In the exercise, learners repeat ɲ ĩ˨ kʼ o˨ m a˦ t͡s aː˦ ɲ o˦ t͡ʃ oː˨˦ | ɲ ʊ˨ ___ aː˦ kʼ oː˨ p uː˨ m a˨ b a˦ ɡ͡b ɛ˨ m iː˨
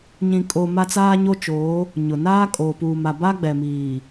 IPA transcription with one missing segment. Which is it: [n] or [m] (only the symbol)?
n